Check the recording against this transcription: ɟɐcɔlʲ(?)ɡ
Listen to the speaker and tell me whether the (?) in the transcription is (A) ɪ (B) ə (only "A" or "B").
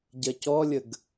B